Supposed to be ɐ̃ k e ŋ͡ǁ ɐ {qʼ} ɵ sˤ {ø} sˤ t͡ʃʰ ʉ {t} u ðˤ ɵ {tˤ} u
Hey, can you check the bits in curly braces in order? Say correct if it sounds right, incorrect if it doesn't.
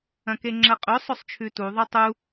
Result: correct, incorrect: ɵ, correct, correct

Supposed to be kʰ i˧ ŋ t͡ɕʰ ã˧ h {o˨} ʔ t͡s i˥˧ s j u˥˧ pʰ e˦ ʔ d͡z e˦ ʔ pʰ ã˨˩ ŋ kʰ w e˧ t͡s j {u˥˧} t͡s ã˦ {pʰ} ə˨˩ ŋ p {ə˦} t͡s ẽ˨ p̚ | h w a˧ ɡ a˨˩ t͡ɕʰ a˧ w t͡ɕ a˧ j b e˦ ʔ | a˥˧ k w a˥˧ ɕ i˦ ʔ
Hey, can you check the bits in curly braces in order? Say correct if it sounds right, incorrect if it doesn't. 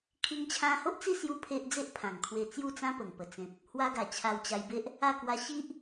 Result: incorrect: o˦, correct, incorrect: p, incorrect: ə˨˩

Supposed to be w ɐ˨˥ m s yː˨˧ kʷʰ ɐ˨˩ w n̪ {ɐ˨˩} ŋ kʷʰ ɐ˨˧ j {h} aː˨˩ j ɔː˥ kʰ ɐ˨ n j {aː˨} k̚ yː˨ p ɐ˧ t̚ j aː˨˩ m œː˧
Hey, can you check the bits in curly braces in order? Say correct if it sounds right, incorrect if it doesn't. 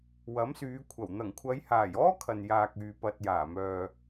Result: correct, correct, correct

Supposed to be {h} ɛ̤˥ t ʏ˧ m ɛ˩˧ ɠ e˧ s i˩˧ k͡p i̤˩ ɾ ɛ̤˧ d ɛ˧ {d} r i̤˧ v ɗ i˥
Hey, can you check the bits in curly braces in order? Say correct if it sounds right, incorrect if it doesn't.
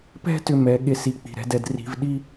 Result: incorrect: p, correct

